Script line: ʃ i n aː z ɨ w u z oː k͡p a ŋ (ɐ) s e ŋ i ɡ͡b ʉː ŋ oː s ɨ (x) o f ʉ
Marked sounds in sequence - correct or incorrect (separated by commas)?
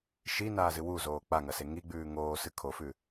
correct, incorrect